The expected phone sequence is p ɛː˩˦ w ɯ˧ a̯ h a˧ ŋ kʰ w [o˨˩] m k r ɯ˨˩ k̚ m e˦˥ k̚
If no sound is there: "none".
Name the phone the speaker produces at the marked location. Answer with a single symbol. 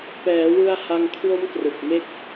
o˦˥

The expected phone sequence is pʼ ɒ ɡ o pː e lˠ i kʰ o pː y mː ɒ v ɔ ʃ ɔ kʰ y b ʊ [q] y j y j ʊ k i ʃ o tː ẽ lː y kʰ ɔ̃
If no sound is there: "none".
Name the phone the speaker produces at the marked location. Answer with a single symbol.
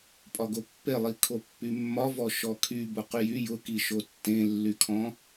q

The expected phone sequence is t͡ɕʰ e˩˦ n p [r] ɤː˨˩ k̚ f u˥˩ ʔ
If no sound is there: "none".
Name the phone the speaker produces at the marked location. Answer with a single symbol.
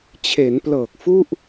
l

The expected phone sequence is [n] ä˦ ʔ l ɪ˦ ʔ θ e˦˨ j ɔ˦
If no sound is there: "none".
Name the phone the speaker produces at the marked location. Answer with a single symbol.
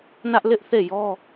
n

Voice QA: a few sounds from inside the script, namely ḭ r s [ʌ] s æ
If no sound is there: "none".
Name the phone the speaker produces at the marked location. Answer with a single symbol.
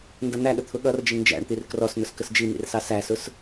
ɑ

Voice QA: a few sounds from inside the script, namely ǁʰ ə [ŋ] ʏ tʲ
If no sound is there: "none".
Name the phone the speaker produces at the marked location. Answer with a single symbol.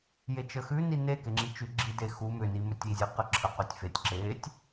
q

